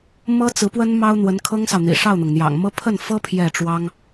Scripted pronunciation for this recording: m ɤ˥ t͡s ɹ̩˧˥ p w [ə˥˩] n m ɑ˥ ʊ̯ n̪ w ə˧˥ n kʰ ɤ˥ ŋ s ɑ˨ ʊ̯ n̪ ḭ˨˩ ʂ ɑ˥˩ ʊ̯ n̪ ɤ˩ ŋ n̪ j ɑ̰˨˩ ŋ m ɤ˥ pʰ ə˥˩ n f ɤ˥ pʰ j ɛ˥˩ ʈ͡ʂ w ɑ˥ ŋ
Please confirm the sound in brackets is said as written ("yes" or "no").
no